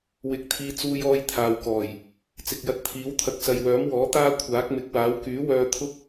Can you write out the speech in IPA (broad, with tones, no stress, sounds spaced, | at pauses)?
w ɪ˧ k̚ t̪ʰ iː˧ t͡s uː˧ j ɔː˧ j t̪ʰ aː˨ w k ɔː˨˩ j | t͡s ɪ˨ k̚ j ɐ˧ t̚ t̪ʰ iː˨˥ w t̪ʰ ɐ˧ k̚ s ɐ˨ j w œː˨˥ m w ɔː˨˥ t̪ aː˥ kʷʰ aː˨˥ k̚ m ɪ˨˥ k̚ w aː˨˥ w k yː˨˥ w œː˧ t̪ʰ ʊ˥ k̚